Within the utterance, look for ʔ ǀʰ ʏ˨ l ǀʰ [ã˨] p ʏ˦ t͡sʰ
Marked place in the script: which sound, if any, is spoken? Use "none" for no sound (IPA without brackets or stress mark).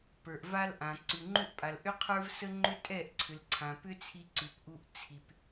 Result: ã˨